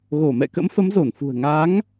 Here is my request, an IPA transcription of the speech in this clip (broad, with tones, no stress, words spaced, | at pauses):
ɣo˧˩mɛ̰˧˨kə̰˧˥mfə˨˦m zo˧˩nfṳ˨˩ə̯ ŋa˨˦ŋ